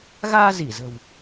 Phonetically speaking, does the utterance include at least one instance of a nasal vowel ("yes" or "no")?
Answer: no